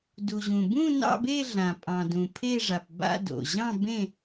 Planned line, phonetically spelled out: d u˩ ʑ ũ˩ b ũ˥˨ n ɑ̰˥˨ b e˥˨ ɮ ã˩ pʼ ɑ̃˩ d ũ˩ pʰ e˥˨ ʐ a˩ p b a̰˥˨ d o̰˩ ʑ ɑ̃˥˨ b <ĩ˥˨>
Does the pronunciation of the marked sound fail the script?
yes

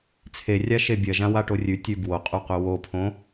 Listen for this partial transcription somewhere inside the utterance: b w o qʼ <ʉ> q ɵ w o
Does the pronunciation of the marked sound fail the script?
yes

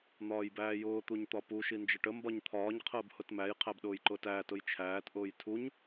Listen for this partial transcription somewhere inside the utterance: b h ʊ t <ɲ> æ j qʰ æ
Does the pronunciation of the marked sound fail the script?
yes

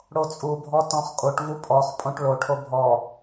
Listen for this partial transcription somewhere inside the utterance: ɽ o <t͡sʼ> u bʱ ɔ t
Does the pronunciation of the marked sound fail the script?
no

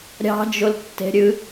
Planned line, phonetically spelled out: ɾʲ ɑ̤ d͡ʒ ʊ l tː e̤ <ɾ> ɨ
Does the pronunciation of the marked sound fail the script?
yes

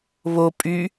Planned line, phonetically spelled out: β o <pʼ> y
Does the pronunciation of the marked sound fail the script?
no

